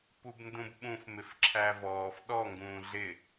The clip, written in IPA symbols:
pubndũbɓũf mɪfǁʰævɔːf ɗɔ ŋɡũːɮɪ

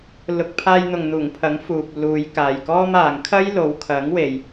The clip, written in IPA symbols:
lʊ˨k̚ pʰaː˧jn̪ʊ˨ŋn̪uː˨˩ŋ pʰɐ˨˥ŋfuː˨p̚luː˨˧j kaː˨jkɔː˥maː˨˧ŋ kʰɐ˥jlo˨˧wkʰɐ˨˥ŋwe˨j

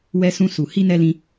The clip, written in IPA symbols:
wɛ˧sũ˧su˨ hi˧nɛ˧lĩ˧

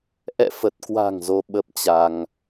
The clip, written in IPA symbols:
ʔɛ̰˧˨fə˨˩t̚kwa̤˨˩ŋ zo˧ ɓə˦˥p̚t͡ɕa˧ŋ

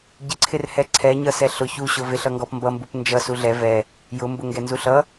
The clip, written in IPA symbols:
ɟɪǀʰɪrhɛ ǀʰɛɲʌ sɛɬʊ çuɕʊ vɪɬʌŋɡɔp mbʌmbup nd͡ʒʌsu ɮɛ vɛ | jʊmbʊŋɡɛ nzuɬʌ

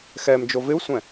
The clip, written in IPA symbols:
xɛm d͡ʒovɪu̯sʷɛ̃

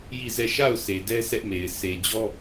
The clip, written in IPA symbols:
ji˦˨zɛ˦˨ ʃa˦˨ʊ̯ se˨dɛ˦ sʰɛ˦ʔme˨ɪ̯ sʰe˨d͡ʑɔ˦

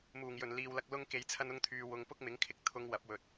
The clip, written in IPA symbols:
muː˨˩ŋjɵ˨˩n liː˧wlɐ˥k̚ lʊ˥ŋ ke˧jt͡sʰɐ˥nʊ˥ŋt̪ʰyː˧ wʊ˧ŋ pʊ˥k̚mɪ˨˥ŋkʰɪ˧k̚ t̪ʰʊ˨˧ŋ wɐ˨˥p̚wɵ˨t̚

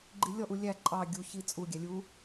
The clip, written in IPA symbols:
ɡ͡ǃilʲɔʔu lʲæ ǃʼɑ ɡʲuçi t͡sʼuɡʲæ lʲu

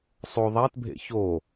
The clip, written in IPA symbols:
sˤo ðˤætbʱḛ ço

